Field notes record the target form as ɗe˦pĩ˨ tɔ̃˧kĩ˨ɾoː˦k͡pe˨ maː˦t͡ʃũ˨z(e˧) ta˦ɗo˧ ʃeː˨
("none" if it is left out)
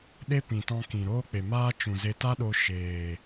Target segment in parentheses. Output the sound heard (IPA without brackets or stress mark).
e˧